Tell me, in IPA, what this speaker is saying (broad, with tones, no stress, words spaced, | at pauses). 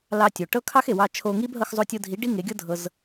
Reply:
lɑ˧tʲo˩ ʈɤ˥kʰɑ˥xe˩wɑ˧ t͡ʃʰo˧ŋi˥b ɦɤ˧xzˤo˧tʲɤ˧dʱi˩˥ ɖi˥ŋe˩˥ɡʲɤ˥ dʱɤ˧z